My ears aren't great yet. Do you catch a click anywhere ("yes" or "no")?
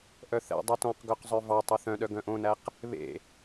no